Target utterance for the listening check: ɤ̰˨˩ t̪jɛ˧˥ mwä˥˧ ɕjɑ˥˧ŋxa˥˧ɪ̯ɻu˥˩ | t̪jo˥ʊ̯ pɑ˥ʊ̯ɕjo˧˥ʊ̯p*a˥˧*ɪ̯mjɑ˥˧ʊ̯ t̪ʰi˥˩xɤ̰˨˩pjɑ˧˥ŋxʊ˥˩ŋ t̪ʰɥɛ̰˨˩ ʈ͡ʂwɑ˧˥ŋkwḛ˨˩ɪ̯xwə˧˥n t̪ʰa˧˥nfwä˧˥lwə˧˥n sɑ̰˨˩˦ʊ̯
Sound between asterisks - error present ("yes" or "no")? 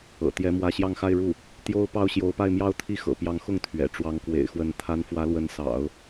no